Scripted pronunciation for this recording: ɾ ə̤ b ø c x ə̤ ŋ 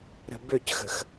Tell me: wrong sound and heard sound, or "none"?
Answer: ŋ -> x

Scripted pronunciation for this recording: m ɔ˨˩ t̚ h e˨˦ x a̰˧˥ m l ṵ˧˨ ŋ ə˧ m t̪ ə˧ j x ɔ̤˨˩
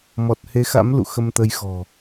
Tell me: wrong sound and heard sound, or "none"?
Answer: ŋ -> x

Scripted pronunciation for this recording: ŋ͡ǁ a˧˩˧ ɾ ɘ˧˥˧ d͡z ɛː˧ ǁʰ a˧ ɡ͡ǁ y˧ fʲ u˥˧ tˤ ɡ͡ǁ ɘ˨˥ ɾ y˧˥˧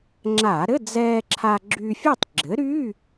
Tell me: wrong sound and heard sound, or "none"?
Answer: none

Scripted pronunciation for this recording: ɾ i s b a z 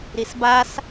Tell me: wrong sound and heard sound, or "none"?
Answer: z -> s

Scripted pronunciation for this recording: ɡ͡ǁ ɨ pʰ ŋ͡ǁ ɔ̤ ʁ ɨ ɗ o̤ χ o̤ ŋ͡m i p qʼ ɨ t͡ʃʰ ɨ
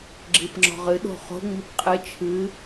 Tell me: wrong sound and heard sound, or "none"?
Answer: pʰ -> p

